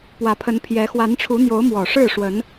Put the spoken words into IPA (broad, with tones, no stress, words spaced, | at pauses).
pwä˨˦pʰə˨˦npʰjɛ˨˦ xwa˨˦nʈ͡ʂʰu˨˦n̪jo˨˦ʊ̯mwɔ˨˩ ʂɻ̩˥˨ʂwə˨˦n